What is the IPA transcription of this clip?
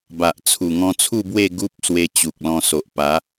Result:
b a˨ ʔ t͡sʰ u˨˩ ŋ ɔ̃˧ t͡sʰ u˥˧ b w e˥˧ ɡ u˦ p̚ s w e˧ t͡ɕ u˨ k̚ l ɔ̃˧ s o˨ ʔ p a˨˦

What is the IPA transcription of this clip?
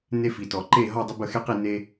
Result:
n e˧ f i˩ t ɔ˩ ǃ e˥˩ ɦ ɔ˥˩ dˤ ə˥ b ə˥˩ x e˥ q i˥˩ n e˧

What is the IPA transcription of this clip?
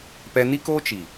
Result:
p ɛ˧ n i˦ k oː˦ t͡ʃ i˨

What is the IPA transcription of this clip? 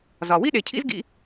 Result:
z ɒ˨ w i˦ ɗ e˨ cʰ ḭ˦ z ɡ ḭ˧

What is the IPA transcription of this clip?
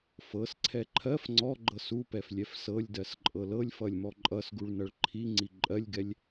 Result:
f ɤ s ǀʰ ɛ ǃʰ ɜ f ŋ͡ǀ ɔ ɡ͡ǃ ɤ s u p ɛ f lʲ ɛ f s ɤ lʲ d ɜ s ǃʼ ɤ l ɤ lʲ f ʌ lʲ m ɔ ǃʼ ʌ s ɡ u ɭ n ʌ ɭ ǃʰ i ŋ͡ǀ i ǃʼ ɜ lʲ ɡ ɛ lʲ

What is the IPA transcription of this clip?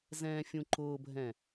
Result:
z ɛ̃ː fʲ ũ ǃ ʊː bʱ ɛ̃

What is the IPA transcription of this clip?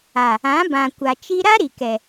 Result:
a˨ | ã˨˦ b ã˨ kʷ a˨ t͡ʃ i˦ ɾ a˦ ɾ i˨ k ɛ˨

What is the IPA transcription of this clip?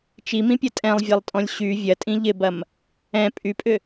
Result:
t͡ʃ i m ĩ pʲ ɐ tʼ ɛ̃ lˠ vʲ ɛ lˠ tʼ ɔ̃ lʲ ɕ y vʲ ɐ tʼ ĩ ʎ ɪ b ɐ m | ɛ̃ pʼ y pʼ ʏ

